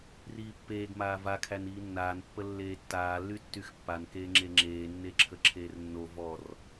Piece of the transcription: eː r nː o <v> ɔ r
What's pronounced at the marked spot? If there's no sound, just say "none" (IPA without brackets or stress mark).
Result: v